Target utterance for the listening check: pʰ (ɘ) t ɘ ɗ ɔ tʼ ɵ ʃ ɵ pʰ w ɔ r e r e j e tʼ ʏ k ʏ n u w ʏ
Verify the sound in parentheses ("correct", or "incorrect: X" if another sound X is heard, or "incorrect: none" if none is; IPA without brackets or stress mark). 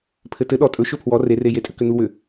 correct